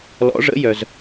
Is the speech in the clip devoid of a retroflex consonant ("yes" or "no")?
no